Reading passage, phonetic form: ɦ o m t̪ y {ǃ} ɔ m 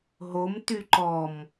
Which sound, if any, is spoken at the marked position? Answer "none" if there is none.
ǃ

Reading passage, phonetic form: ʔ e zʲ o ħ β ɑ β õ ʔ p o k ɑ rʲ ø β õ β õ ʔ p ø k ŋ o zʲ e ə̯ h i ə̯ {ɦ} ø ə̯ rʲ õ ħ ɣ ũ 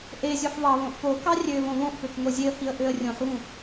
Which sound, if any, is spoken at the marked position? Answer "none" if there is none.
ʔ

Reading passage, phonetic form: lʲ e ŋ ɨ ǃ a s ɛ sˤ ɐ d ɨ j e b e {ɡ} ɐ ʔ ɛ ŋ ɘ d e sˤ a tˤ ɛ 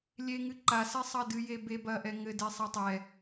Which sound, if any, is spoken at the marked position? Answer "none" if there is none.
b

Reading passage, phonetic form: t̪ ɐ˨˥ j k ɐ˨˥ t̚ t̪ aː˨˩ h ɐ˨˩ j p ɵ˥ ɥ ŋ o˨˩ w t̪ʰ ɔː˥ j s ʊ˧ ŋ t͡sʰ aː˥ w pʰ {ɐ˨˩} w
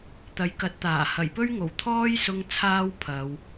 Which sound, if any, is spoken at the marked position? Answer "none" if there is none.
ɐ˨˧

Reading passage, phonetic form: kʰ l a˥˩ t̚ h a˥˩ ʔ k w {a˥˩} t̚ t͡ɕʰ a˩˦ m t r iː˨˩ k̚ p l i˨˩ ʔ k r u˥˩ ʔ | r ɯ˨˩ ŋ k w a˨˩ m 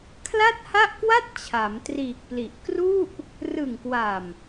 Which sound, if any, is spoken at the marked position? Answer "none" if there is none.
a˥˩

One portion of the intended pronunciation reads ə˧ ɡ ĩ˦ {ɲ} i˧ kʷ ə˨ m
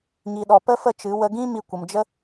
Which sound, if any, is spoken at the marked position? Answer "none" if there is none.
m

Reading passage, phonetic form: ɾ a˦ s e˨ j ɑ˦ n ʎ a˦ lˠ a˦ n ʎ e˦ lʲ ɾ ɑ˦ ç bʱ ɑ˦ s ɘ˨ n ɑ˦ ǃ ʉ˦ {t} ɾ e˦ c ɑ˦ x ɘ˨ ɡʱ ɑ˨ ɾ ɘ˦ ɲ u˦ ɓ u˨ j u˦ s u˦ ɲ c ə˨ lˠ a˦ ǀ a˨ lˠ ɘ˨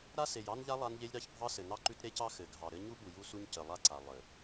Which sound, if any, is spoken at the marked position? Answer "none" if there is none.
t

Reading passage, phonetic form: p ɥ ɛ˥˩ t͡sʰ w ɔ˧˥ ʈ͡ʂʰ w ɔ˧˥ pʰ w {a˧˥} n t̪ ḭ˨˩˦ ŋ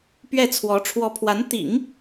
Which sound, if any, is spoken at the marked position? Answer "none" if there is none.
a˧˥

